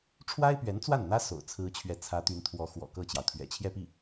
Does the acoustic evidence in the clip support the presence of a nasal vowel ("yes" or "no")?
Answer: no